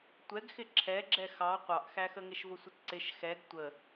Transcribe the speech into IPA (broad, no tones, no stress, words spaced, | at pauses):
tʷɛɡxɪ ǁʰɛɡ͡ǁɛ xɑ qʷɑʔxæxəŋɪʃ vʊsʷɪtǀɪʃ xɛɡ tʷə